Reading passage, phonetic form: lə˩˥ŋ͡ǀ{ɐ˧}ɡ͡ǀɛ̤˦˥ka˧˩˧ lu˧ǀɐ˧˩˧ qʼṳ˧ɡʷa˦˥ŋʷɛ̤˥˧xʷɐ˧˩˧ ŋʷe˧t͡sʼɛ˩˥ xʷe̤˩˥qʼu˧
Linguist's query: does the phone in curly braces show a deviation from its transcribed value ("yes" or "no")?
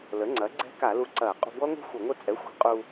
yes